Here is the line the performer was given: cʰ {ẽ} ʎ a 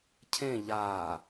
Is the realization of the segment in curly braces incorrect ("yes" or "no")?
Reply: no